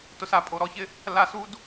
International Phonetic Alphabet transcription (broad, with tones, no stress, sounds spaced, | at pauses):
t ʊ˨ s a˨ pʼ o˨ ɾ ɔ˦˨ ç ɪ˦ | l a˧ s u˦ d